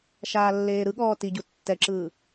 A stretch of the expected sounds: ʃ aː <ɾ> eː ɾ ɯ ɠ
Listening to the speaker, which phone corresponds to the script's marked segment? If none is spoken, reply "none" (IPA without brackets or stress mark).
lː